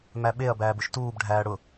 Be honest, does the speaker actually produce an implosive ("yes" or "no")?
yes